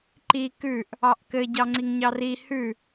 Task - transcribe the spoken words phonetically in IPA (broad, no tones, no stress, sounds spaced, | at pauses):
ǃ i k ʉ ʔ | ɑ ʔ k ɘ ɟ ɑ ŋ͡ǀ i ŋ ɲ ɑ r i h ʉ